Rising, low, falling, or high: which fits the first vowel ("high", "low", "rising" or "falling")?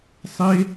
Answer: high